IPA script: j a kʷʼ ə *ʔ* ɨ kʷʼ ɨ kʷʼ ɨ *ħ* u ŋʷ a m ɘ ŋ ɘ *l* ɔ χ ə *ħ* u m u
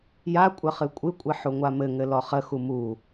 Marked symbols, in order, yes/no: no, yes, yes, no

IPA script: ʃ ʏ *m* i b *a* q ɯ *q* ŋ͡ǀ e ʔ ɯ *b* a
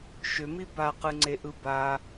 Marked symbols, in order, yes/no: yes, yes, no, yes

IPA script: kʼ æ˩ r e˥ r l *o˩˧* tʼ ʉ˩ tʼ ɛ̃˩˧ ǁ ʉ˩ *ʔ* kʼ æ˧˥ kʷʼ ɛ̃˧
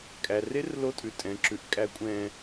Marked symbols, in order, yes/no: no, yes

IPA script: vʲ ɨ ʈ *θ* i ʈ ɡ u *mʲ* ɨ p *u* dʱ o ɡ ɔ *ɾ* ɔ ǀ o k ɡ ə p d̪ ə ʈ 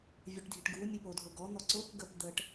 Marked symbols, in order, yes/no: no, yes, no, no

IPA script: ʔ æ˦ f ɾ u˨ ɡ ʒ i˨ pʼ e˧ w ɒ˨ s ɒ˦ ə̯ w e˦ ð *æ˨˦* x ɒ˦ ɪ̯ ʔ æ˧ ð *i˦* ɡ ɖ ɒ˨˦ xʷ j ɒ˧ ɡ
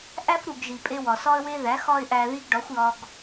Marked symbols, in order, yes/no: yes, yes

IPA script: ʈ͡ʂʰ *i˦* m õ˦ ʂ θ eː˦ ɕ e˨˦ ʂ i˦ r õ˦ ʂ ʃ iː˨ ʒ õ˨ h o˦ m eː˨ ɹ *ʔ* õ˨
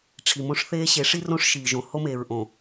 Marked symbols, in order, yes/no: no, yes

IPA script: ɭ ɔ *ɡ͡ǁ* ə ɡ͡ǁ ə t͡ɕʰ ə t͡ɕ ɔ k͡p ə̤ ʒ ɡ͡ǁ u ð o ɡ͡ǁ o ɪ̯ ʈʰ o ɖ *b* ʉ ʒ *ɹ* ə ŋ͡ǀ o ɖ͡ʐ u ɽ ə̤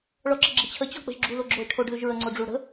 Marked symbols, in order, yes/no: no, no, yes

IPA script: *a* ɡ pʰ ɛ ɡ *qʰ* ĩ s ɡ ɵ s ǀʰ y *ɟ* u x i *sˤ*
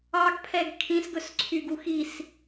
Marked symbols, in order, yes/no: no, no, no, no

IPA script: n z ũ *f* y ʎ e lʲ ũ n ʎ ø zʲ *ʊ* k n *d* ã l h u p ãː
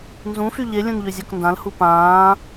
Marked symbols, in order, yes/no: yes, no, yes

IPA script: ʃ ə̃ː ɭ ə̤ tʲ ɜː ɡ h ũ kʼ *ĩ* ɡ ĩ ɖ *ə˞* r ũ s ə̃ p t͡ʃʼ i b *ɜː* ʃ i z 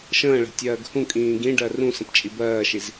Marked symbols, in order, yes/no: no, no, yes

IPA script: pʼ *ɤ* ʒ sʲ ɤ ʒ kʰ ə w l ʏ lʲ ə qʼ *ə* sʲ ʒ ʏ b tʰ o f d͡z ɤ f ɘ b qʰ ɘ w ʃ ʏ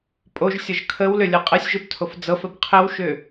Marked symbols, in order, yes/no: no, yes

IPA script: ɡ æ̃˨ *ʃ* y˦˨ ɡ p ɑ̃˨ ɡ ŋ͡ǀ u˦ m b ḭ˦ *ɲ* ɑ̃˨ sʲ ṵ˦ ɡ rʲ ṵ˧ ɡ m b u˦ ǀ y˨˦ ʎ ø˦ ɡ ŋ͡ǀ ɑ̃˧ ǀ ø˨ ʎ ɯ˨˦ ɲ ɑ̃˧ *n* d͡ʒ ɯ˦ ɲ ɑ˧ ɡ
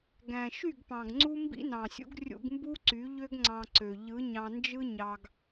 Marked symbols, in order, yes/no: yes, no, yes

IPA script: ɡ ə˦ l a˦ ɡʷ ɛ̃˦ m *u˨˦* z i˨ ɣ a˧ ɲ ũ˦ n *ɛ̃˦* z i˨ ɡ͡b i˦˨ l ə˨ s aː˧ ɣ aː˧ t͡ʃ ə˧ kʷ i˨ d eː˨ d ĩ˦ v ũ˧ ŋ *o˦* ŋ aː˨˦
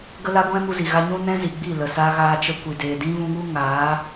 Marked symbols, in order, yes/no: no, yes, no

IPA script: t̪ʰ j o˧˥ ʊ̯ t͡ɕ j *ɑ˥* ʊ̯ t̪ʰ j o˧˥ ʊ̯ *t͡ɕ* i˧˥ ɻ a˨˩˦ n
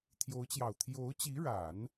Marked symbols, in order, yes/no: no, yes

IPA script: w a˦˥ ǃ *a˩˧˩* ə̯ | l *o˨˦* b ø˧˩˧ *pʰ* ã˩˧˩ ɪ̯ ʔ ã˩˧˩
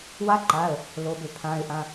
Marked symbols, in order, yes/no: yes, yes, yes

